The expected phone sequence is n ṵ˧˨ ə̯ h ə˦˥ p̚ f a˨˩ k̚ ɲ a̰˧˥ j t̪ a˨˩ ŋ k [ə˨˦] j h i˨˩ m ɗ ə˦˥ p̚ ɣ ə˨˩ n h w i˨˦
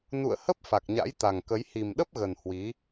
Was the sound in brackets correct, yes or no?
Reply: yes